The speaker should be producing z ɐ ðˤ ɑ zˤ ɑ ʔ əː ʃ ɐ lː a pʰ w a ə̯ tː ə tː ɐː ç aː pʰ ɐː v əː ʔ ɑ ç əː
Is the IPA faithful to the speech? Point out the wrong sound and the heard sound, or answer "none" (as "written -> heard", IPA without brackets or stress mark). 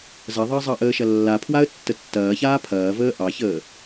none